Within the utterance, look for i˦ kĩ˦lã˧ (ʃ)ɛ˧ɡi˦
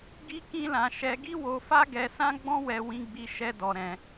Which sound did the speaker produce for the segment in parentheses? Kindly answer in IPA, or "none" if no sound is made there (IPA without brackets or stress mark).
ʃ